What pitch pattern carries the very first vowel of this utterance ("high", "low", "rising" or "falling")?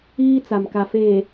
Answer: high